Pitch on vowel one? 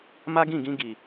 high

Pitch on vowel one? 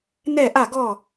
falling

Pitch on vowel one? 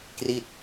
falling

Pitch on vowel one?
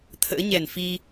rising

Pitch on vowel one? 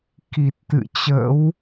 low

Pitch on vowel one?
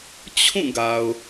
falling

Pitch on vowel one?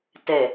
low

